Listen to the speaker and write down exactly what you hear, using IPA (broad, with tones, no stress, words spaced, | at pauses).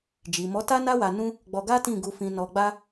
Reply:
d͡ʒi˨mɔ˨˦ta˦ na˦ wa˧nũ˦ | ɡ͡bɔ˧ɡa˦tĩ˦˨ ɡu˧fĩ˧ nɔ˧ɡ͡ba˦